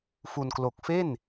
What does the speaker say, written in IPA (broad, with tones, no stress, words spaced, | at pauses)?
fu˧nklo˨˩k̚ fe˥˩n